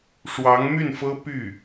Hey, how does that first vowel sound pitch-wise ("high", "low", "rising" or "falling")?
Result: rising